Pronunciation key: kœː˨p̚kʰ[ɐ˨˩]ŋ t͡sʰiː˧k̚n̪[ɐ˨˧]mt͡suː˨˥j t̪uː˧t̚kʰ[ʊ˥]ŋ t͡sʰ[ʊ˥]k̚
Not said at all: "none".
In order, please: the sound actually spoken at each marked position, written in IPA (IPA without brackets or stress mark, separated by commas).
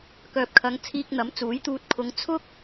ɐ˨˧, ɐ˨˥, ʊ˨˧, ʊ˥